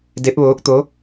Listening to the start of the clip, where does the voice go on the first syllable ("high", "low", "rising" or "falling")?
rising